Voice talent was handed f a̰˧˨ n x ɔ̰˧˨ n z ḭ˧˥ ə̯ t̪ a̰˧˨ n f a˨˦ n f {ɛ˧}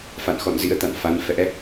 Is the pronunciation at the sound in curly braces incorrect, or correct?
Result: incorrect